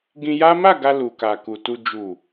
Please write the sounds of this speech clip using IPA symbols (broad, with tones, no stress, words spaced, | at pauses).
ɡĩ˧ja˦ ma˦˨ɡa˧ lu˨ka˨ku˨ tu˨d͡ʒu˨